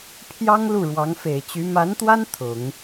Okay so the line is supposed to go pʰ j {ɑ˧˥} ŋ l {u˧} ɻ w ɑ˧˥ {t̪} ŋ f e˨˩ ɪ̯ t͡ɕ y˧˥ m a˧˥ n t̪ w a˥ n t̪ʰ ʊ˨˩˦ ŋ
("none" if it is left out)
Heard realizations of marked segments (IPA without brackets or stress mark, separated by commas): ɑ˥, u˥˩, none